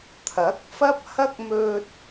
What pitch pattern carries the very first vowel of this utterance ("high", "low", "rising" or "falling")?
rising